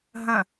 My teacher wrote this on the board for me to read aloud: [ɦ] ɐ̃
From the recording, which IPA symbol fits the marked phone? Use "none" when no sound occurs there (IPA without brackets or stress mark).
ɦ